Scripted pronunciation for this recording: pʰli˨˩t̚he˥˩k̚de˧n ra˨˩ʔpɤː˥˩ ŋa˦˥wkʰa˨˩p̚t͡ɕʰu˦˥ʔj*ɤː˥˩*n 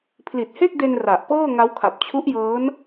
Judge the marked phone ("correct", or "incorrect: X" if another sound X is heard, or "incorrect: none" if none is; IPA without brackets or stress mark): incorrect: ɤː˦˥